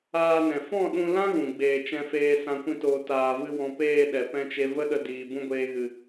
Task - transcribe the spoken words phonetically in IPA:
aː˧ n ɛ̃˨ f ɔ̃˦˨ ɗ ũ˧ l ã˦ ɣ ũ˨ ɡ͡b eː˧ t͡ʃ ɛ̃˧ f eː˧ s ã˧ kʷ ĩ˧ t oː˨ t aː˨ v ɨ˧ w ɔ̃˨ p eː˦˨ ɗ ɛ˨ p ɛ̃˦ t͡ʃ e˦ v ə˦ ɗ ə˧ d iː˨ b ũ˧ ɡʷ eː˧ ɣ ɨ˨

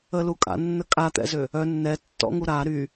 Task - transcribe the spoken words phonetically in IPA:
ə l u kʼ a̰ nː ə kʼ a t̪ ɛ̰ z ø | œ nː ɛ tː ɔ̰ ŋ u ɾ a ɾ y

